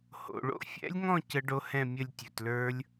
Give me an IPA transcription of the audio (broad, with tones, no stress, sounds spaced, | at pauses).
h o̰˩ ɭ o̰˦˥ fʲ ɛ̰˦˥ lʲ ŋ ɔ̃˥˧ c ə˦˥ ɖ o˦˥ h ɛ̃˥˧ mʲ ə˥˧ lʲ tʲ ɵ˩ t l ə˞˦˥ lʲ